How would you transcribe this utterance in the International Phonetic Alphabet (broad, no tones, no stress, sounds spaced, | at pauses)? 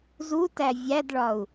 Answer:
z u t æ vʲ æ d ɭ ɒ u̯